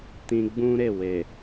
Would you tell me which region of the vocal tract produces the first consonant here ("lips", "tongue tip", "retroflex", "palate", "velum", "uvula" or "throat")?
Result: tongue tip